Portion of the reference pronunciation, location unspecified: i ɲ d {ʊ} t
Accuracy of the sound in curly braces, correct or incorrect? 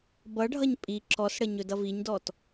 incorrect: ɔ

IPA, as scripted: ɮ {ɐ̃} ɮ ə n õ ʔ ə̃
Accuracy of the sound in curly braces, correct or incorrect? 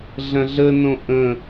correct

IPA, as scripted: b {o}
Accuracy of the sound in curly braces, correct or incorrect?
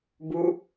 incorrect: u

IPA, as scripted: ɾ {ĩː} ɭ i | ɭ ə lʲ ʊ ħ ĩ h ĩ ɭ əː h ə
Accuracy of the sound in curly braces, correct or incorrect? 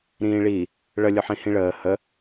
correct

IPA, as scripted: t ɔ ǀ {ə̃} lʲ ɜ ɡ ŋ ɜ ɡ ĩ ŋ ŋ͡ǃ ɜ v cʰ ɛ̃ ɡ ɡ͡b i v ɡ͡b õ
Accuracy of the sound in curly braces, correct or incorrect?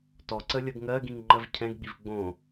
incorrect: ə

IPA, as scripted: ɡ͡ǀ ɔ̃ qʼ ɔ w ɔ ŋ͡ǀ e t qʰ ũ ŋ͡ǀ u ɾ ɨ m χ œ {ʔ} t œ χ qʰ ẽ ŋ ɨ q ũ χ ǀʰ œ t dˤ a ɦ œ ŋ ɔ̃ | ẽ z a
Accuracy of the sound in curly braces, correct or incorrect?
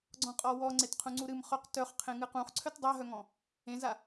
incorrect: q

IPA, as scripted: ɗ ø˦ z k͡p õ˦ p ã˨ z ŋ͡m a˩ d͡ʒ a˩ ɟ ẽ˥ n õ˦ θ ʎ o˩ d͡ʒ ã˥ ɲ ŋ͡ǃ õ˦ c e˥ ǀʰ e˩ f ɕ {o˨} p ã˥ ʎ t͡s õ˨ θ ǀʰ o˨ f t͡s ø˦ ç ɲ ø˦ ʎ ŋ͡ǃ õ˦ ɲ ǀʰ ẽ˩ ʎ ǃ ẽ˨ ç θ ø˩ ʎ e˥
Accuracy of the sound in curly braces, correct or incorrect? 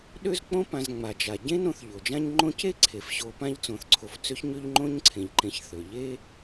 correct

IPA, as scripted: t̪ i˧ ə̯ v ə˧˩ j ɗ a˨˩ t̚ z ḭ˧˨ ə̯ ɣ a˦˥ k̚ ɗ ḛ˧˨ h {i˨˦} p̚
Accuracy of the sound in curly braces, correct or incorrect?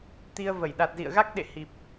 incorrect: i˨˩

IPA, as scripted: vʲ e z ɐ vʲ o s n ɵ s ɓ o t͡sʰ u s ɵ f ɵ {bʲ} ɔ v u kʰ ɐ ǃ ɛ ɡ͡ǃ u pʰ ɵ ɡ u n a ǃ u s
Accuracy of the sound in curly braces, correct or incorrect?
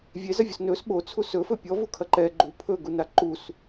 incorrect: pʲ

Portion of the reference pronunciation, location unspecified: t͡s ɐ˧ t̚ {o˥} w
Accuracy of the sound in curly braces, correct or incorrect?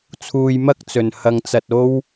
correct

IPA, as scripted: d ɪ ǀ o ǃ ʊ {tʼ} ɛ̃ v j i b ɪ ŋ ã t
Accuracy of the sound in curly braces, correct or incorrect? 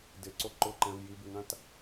incorrect: ǃ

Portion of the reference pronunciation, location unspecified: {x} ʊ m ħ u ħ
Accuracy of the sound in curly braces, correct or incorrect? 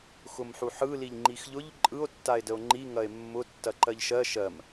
correct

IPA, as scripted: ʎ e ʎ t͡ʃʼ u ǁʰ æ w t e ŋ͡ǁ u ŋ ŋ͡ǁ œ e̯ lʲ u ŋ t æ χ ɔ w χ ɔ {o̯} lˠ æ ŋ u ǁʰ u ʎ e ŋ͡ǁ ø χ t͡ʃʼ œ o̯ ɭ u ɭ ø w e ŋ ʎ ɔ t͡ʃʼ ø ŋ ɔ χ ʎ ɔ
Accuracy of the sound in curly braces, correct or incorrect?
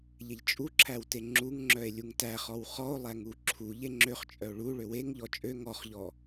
correct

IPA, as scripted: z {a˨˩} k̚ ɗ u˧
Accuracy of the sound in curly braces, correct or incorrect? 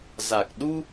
correct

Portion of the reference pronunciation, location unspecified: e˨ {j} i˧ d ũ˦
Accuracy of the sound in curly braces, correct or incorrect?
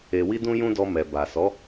incorrect: w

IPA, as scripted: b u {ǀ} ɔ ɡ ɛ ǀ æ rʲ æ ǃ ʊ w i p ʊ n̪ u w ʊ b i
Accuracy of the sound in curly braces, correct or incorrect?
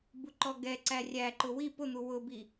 incorrect: ǃ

